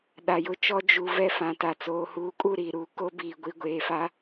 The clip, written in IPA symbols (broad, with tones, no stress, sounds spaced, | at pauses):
ɗ a˨ j ʊ˦ t͡ʃ ɔ˦ d͡ʒ u˨ v ɛ˦ f ã˨ t a˨ t͡s oː˨ h uː˨˦ kʼ uː˦˨ ɾ iː˨ ɾ uː˨ k o˦ b iː˨ ɡʷ i˨ ɡʷ eː˨ f a˦